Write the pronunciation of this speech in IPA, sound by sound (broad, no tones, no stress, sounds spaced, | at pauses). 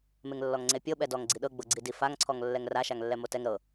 m e ŋ lː ɔ ŋ ŋ͡ǀ e pʲ ɤ ɓ ɛ d ɔ ŋ ɡ͡ǀ i ɗ ɤ ɡ͡b ɤ ɡ͡ǀ i d i f a ŋ ǀʰ ɔ ŋ lː ɛ ŋ r a ʃ a ŋ lː ɛ m o t ɛ ŋ ɾ ɤ